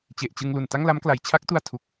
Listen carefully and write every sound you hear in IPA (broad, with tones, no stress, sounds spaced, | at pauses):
t͡ɕ e˨˩ ʔ t͡ɕ ɯ˧ ŋ l u˨˩ n t a˥˩ ŋ l a˦˥ m k l a˩˦ j t͡ɕʰ a˦˥ k̚ t u˧ a̯ tʰ u˨˩ k̚